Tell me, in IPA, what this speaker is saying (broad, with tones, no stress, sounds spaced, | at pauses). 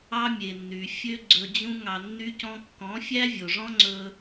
ɑ˦ mʲ e˨ nː y˨ fʲ ø˦ ɡ͡ǀ ɵ˧ d͡ʑ ũ˦ ŋ ɑ˧ nː y˦ c ɔ̃˦ kː ɔ̃˨˦ fʲ æ˦ vʲ o˨ ʐ ɔ̃˦ ŋ͡ǀ ɵ˦